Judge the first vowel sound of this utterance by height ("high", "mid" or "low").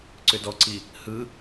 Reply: high